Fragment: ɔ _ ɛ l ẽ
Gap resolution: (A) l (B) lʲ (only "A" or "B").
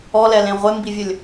A